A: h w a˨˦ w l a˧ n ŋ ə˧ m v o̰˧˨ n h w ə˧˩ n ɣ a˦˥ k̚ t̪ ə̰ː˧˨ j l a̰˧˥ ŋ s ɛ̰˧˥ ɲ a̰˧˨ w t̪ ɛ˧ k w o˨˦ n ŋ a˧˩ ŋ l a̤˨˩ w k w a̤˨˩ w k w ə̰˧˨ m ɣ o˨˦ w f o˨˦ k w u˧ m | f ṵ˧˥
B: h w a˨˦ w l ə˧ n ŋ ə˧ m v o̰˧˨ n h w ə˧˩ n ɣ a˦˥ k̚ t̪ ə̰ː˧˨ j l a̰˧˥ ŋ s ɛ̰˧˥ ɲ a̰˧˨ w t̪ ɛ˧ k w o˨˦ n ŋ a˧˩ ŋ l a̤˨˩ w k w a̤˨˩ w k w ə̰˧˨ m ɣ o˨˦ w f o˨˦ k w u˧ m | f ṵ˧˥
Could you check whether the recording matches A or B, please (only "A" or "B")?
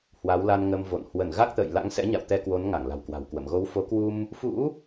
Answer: A